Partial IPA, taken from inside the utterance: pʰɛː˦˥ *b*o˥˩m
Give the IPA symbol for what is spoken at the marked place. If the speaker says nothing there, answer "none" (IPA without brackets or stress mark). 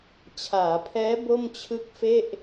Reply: b